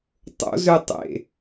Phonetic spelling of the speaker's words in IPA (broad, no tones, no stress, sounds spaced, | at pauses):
tˤ o̰ z ø tˤ ḛ